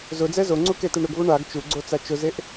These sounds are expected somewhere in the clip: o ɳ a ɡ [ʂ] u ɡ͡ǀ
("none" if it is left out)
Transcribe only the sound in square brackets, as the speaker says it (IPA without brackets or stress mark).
t͡ʃ